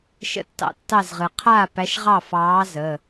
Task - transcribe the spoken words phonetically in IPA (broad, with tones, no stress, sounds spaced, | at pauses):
ʃ ə̰˦ tː ɑ̰˦ tː ɑ˥˩ z ʁ ɨ˩ qʰ aː˥˩ p æ˨˥ ʃ ʁ ɑ˥˩ f ɑː˨˥ z ə˩˧˩